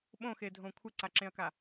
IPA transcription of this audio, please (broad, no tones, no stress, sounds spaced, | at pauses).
ɓ õ x e dʱ õ kʷʰ ɪ ǀ a ǁ ẽ ɐ̯ k a